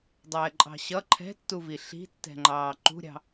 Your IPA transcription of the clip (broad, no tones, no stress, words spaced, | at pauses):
dˤɛːǃʼɑ̤ɕʌ ǃʰɛ̤tːuvi ɬi̤tːɛ̤ŋ͡ǃɑː ǃṳɾʲɑ̤